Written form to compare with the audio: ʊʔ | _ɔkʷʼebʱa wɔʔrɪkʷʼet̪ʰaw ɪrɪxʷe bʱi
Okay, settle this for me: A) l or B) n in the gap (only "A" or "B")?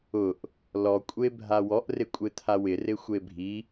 A